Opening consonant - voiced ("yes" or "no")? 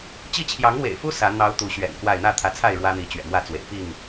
no